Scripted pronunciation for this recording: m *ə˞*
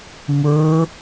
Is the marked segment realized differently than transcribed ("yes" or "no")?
no